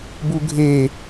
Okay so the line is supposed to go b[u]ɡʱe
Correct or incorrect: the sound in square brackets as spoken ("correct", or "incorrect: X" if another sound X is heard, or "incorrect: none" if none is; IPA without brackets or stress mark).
correct